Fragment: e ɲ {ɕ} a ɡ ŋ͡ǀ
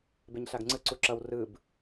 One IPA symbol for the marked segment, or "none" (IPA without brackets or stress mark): ɬ